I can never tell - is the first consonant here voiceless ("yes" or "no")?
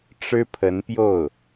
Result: yes